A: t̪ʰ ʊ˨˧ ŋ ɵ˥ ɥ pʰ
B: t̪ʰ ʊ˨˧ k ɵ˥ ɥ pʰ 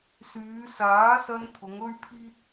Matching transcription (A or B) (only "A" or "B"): A